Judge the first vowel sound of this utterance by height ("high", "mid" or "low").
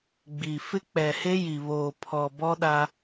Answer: high